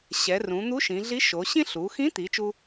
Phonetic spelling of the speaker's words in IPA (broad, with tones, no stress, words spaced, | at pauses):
ɕɛ˩˧rũ˩˧ n̪u˧˥ʃĩ˩˧ɮi˧˥ʃo˩˧ ɕĩ˥ ɬu˩˧xĩ˧˥t̪i˩˧ t͡ʃu˥